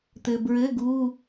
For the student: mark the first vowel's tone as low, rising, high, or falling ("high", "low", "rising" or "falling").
low